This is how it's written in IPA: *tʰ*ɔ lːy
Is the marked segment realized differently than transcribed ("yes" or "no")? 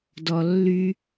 yes